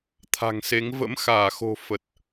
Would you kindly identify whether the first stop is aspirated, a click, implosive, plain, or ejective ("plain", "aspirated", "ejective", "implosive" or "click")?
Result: aspirated